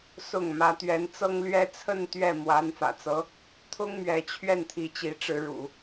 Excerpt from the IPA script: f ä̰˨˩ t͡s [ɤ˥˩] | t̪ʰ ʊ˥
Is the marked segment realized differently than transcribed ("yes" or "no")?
yes